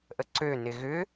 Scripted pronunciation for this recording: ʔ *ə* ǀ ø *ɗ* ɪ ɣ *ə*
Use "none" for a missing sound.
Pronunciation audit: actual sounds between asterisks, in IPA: ə, n, ʏ

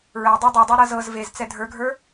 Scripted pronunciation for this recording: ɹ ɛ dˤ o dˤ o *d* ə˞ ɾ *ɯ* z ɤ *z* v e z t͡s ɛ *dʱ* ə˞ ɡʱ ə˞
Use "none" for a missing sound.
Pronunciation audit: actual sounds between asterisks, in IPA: dˤ, ɤ, z, dʱ

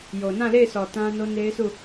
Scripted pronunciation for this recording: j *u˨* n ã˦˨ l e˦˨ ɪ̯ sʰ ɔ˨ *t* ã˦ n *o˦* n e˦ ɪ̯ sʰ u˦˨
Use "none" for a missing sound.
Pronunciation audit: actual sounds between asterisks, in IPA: o˨, t, o˦

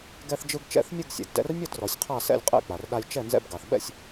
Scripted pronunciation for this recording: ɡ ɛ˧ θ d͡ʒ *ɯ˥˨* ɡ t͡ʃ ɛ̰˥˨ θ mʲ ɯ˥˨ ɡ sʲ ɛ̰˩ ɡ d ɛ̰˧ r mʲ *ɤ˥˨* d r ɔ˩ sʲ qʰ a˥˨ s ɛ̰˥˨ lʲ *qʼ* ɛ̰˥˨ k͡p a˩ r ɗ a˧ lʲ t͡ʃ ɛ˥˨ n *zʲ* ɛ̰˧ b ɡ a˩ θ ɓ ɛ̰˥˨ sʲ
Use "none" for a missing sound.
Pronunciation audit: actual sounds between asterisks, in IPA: ɯ˧, ɤ˥˨, qʼ, z

